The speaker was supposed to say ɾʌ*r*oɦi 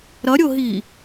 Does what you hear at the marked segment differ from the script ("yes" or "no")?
yes